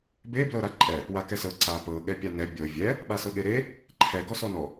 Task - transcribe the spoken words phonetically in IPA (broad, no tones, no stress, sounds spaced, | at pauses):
b e b l ɤ ɾ a ǃʼ ɛ | w a k ɛ s ɤ ǀ a p ɤ ɠ ɛ pʲ a n ɛ bʲ ɤ vʲ ɛ | ɓ a s ɤ ɠ e ɾ e | ǃʰ ɛ ɡ ɔ s ɔ n ɔ